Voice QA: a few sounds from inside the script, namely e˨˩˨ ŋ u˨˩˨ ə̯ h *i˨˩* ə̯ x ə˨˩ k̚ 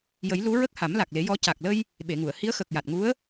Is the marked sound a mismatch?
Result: yes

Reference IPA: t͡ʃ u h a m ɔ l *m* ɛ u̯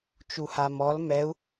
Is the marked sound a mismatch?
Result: no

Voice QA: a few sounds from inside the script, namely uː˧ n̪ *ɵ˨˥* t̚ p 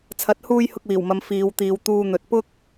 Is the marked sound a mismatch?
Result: yes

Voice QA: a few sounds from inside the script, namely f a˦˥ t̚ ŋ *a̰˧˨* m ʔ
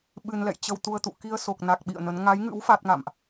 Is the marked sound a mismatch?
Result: no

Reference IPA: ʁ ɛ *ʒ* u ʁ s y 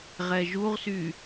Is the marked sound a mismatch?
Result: no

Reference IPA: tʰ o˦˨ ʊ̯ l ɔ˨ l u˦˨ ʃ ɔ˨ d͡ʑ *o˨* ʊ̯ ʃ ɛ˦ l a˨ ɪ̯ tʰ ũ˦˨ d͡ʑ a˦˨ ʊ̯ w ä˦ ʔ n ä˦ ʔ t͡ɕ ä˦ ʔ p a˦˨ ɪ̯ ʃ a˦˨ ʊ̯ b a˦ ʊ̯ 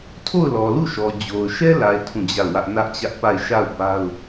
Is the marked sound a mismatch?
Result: no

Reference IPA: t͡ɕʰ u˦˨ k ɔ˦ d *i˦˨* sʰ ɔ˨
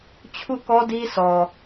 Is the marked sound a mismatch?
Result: yes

